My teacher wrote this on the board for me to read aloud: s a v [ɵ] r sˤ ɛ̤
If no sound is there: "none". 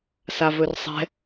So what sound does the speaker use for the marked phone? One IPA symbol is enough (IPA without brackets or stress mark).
ɵ